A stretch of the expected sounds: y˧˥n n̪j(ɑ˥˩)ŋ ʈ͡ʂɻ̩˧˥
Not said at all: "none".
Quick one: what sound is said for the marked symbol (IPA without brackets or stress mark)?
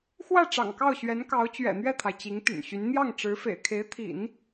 ɑ˥˩